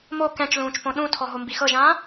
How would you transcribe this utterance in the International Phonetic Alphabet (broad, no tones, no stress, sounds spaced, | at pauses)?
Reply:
m o k ɛ̃ t͡ʃ l ũː t͡ʃ p õ ɗ ũ tʰ ɔ ɦ o m b i x ɤ ʒ ãː